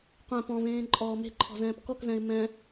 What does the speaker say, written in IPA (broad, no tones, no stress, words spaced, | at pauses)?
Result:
qʷɛ̃ pɔ̃vẽː ǃʼɔːme̤ǃʰɔ̤ zɛ̃ːpkɔkzɛ̃ɪ̯ mɛ̃